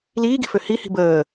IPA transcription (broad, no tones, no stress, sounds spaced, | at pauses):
l iː ɡ i̤ f ø h i h i̤ b əː